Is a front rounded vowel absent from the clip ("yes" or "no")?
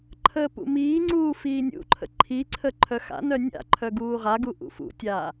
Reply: no